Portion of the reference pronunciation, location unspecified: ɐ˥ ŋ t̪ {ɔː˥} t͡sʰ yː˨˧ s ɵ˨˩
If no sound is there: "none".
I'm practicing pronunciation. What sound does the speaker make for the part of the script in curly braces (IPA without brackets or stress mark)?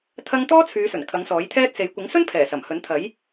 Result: ɔː˥